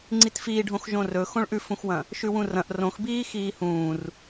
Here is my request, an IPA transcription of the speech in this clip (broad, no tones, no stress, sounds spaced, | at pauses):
ŋ͡ǀ i t f iː ɖʱ õ x ʒ õ r ɵ x õ ɭ ʔ ʉ f ũ x w ɐ̃ | ʃ ʉ w ũ r ɐ̃ ʔ r õ x b iː x iː h ũː r